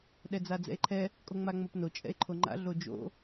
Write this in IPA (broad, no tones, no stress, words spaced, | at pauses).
ɗɛd͡zad͡zɛ̰e̯ǃʰɛ | kʼoŋ͡maŋ͡mopno t͡ʃʼɛ̰e̯ǃʰoŋ͡ǃa̰ ɮod͡ʒo̰